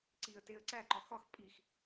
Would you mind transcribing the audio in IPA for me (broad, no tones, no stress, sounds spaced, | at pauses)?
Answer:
ǀ i ə̯ t e ə̯ ǀ æ ǃ ɒ x ɒ x pʼ i x